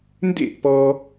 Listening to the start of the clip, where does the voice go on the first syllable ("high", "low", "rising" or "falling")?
falling